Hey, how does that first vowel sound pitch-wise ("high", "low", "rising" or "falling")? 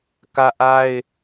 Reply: high